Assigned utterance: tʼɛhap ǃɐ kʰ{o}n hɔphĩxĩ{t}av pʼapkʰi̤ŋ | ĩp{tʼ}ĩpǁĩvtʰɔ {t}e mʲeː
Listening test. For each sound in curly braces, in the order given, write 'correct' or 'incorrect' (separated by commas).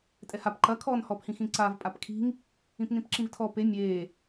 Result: incorrect, incorrect, incorrect, incorrect